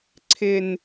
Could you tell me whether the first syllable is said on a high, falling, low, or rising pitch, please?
high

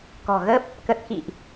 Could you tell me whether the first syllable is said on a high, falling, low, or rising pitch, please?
low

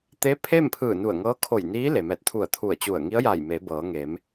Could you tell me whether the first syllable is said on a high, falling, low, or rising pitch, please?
rising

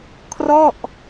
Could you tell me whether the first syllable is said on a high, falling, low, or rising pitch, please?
falling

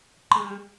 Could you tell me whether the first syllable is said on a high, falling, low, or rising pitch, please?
high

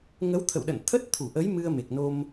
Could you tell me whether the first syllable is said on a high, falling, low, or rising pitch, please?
rising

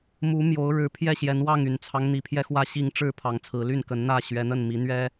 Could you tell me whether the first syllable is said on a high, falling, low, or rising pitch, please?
rising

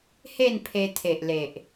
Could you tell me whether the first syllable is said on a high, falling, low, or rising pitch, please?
falling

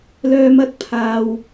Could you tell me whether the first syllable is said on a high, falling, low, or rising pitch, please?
low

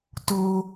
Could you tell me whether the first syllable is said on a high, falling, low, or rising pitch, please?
high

